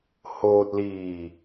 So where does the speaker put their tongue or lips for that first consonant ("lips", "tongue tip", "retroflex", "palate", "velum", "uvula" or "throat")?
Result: throat